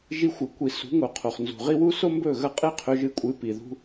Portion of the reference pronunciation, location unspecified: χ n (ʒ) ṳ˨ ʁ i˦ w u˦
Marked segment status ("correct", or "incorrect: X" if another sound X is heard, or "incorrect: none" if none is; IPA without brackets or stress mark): incorrect: z